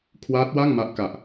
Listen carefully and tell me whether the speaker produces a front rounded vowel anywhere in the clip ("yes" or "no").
no